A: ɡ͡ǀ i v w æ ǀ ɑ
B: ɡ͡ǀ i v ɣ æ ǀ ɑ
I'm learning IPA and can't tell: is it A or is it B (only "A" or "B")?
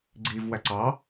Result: A